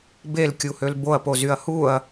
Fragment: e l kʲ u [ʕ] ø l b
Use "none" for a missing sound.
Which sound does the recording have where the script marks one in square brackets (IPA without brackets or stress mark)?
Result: h